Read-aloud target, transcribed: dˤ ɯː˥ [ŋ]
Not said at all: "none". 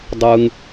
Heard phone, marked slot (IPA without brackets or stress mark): ŋ